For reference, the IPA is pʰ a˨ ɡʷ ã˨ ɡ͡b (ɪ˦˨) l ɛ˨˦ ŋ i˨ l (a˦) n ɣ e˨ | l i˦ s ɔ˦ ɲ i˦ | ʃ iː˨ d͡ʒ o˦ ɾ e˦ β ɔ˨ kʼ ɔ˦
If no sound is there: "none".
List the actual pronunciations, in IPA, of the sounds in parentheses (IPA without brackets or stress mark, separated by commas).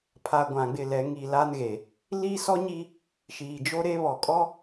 ɪ˦˨, a˦